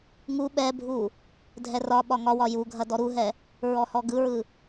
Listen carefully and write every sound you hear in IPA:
ŋ u ɓ ɛ bʱ u | dʱ ɛ r ɒ ɓ ɒ ŋ ɒ w ɒ j u ɡʱ ɐ d ɔ ɾ u ɦ ɛ | ɹ ɔ h ɔ ɡ ɯ ɹ ɯ

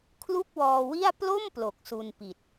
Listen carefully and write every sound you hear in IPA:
kʰ l u˥˩ k̚ w ɔː˧ w i˥˩ a̯ p l o˥˩ m p l o˨˩ k̚ s u˧ n p i˨˩ t̚

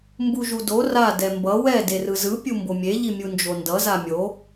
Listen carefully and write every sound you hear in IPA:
m b u ʒ u d o r a d ɛ m b ʌ w ɛ d e r ɯ z ɯ pʲ u m b o mʲ e ʎ i mʲ u n d͡ʒ o n d ʌ z a mʲ o

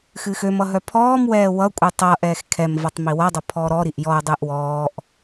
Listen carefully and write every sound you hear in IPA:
x ɨː x ø m ʌ ɦ œ pʰ ɔː m w ɛː w ʌ kʷʼ ɨ tˤ ʌ ʔ ɛː x kʰ ɛ m v ʌ tˤ m i w ʌ dˤ ʌ pʰ ɔː ɾ ɔ ɾ i ʔ j ɔ ə̯ dˤ ɨː ʔ w ɔː ʔ

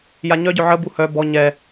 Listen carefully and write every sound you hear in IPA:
j a ɲ œ ɟ œ ʕ ə b u h œ b ɔ ɲ ɛ

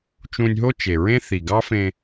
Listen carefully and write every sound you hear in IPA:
t͡ʃ ũ˧ nʲ ɦ o˥ t͡ʃ e˩ ɹ ẽ˥ θ i˩ ɡ ɑ˥ f ẽ˧

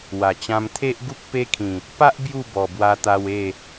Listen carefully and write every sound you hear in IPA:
w a˨˩ t͡ɕ ã˧ m t̪ʰ e˦ ʔ ɡ u˦ k̚ p e˦ kʰ ĩ˨˩ | p a˦ ʔ b j u˥˧ b ɔ˨˩ b w a˧ t̪ a˧ w e˥˧

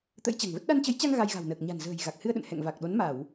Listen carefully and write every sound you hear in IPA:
t̪ ə̰˧˥ j t͡ɕ a̤˨˩ ŋ v ə˦˥ t̚ ɗ a˧ n t͡ɕ ə˨˦ j t͡ɕ a˧ ŋ ɣ a˧ j ɣ a̤˨˩ w n əː˨˩ k̚ ɲ a̤˨˩ n z ə̤ː˨˩ j ɣ a˨˩ k̚ h ɨ˧ ə̯ ɗ ə̰˧˨ n h ɛ̰˧˨ ŋ v a˨˩ k̚ ɗ o˨˦ n m a˧˩˨ w

